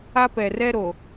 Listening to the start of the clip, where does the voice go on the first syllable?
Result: high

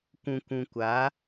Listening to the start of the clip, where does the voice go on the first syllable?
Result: low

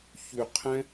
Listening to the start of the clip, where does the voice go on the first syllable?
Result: low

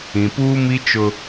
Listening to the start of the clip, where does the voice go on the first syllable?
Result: low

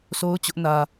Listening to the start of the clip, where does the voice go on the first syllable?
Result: high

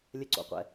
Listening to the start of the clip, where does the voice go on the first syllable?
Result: low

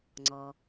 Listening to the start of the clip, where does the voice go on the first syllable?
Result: low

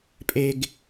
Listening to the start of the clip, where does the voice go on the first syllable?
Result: high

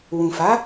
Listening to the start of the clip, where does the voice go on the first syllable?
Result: low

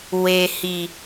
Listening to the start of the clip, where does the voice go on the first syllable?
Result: low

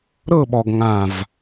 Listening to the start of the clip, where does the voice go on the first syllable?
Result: falling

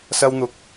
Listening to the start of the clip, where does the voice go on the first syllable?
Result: high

